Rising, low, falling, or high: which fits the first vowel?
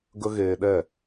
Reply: high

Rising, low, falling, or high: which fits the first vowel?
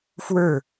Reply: falling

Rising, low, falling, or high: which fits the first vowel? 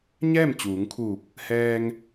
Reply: falling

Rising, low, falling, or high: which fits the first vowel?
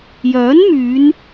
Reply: rising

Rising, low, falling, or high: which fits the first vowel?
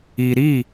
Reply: low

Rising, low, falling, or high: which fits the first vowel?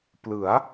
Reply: rising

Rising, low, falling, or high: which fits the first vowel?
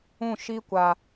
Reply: falling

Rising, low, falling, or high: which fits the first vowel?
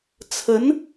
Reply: rising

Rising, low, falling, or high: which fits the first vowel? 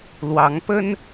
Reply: rising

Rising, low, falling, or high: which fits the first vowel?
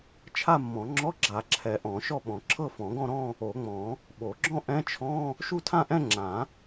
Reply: falling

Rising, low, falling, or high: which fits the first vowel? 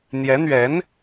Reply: rising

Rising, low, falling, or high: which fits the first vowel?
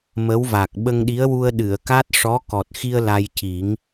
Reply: rising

